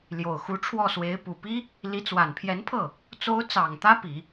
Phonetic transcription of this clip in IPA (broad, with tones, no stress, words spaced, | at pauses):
ljo˨˩ʊ̯xu˧˥ʈ͡ʂʰwɔ˥˩swe˧˥ɪ̯ pu˨˩pi˥ | li˧˥t͡swa˨˩npʰjɛ˧˥npʰɤ˥˩ | t͡so˧˥ʊ̯t͡sɑ˨˩ŋ t̪ä˥pi˨˩˦